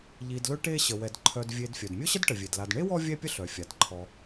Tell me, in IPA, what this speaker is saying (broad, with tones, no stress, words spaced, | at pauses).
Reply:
ʎi˨dlɵ˦ʈe˦ ɕə˩wɛ˩dǃʰœ˨dvʲe˨d fʲœ˩dmʲɵ˥ɕə˥dʈə˩ vʲe˩dla˨d ɳe˥wɔ˦ vʲɛ˦pʲə˦ ɬœ˩fʲa˩d ǃʰɔ˩